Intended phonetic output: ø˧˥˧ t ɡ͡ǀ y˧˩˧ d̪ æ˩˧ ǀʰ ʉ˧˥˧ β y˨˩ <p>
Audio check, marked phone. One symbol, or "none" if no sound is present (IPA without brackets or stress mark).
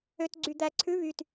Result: t